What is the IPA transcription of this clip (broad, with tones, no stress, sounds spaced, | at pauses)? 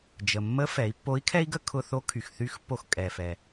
d͡ʒ ə˩ mː ə˧˥ f ɛ˩˧ i̯ pː o˧˥ i̯ kʰ ɛ˥ i̯ ɡ ə˥ kʰ ʊ˧ θ o˧˥ kʰ y˩ x θ y˧˥ x pː o˧ x kʼ ɛ˩ f ɛ˩